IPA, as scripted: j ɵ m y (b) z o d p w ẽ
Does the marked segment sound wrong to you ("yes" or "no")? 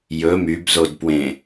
no